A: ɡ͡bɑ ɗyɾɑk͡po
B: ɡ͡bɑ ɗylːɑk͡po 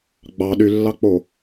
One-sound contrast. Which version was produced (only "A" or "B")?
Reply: B